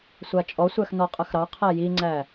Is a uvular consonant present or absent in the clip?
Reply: present